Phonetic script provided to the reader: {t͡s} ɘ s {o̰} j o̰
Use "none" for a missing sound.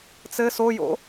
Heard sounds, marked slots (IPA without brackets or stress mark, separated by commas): t͡s, o